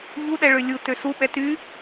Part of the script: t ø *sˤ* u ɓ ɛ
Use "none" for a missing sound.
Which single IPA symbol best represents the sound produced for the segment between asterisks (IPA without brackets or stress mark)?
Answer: s